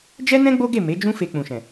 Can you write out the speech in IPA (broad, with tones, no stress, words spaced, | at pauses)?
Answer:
d͡ʒɛ˦nɛ̃˦ ɡ͡bo˦ɡe˦˨ me˨˦d͡ʒũ˦ fe˧k͡pũ˨ʃɛ̃˨